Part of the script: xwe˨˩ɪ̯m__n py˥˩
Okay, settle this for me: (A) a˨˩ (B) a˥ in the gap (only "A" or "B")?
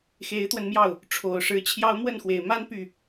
B